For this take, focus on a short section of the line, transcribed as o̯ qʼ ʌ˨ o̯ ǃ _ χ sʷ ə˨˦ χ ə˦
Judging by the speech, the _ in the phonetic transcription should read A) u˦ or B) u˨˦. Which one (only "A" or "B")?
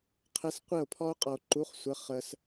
B